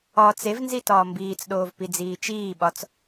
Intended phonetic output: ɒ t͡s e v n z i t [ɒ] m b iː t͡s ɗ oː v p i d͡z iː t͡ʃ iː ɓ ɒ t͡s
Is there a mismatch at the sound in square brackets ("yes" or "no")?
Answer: yes